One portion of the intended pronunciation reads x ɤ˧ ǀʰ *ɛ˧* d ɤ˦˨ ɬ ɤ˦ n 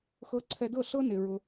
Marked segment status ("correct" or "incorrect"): correct